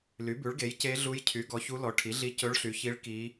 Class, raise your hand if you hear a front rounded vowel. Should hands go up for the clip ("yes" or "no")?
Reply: yes